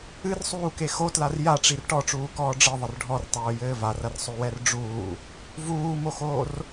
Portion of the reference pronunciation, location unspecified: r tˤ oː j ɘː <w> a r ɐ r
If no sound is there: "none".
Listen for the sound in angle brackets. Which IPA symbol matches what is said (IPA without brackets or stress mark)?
v